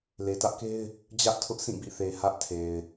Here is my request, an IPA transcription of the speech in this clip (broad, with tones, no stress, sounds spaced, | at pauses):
l e˨ t ä˦ ʔ k e˦ ɪ̯ | d͡ʑ ä˦ ʔ tʰ ʊ˦ ʔ sʰ ĩ˦˨ b ḭ˦˨ θ e˨ h ä˦ ʔ tʰ e˨ ɪ̯